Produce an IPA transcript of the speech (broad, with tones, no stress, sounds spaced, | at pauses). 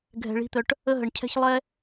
ɡʱ ɛ̤˨ ɭ i̤˨˦ t̪ œ˨ ʈ | ə˦ ɦ ə˨ ɳ cʰ ɛ̤˦ ç lˠ ɛ˦